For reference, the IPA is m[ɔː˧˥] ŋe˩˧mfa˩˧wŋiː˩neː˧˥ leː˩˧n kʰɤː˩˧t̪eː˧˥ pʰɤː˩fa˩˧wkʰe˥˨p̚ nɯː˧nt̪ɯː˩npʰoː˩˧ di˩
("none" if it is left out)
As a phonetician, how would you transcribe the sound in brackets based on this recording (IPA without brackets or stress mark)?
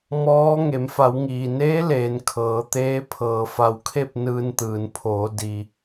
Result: ɔː˧˥